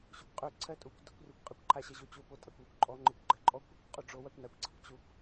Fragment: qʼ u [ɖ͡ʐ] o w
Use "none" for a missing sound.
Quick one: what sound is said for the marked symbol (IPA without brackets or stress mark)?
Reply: ɖ͡ʐ